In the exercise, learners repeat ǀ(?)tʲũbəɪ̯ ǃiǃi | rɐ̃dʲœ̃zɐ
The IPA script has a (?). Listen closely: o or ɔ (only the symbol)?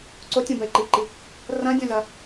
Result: o